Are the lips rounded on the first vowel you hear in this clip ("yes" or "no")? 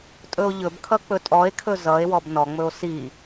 yes